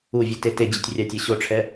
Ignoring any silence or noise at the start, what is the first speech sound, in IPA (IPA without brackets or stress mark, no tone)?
u